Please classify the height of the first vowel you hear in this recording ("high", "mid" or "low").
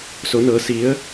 mid